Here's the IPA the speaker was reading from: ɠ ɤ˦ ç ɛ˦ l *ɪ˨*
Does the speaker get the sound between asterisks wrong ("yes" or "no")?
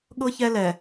yes